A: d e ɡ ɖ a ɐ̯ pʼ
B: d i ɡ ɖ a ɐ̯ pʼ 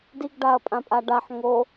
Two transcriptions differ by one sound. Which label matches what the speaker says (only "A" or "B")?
B